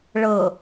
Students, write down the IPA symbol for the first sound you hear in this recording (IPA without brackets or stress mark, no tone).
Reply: ɭ